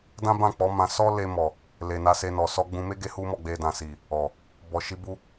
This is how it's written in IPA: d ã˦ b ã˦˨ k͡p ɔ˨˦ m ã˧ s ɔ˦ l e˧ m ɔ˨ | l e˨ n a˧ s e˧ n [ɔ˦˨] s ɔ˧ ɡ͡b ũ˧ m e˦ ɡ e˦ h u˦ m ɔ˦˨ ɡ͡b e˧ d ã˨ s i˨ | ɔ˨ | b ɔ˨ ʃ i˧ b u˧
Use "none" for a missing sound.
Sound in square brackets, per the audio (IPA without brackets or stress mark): ɔ˨